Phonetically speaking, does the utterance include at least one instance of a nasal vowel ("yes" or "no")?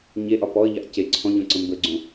yes